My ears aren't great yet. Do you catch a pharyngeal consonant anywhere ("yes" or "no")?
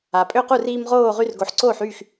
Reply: yes